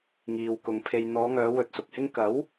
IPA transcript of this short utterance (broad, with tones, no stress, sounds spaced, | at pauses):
ŋ iː˨ w k ʊ˨ ŋ pʰ e˨ j n̪ ɔː˨˧ ŋ œː˨˧ w ɵ˧ t̚ s ʊ˨ k̚ h ɪ˥ ŋ k ɐ˨˥ w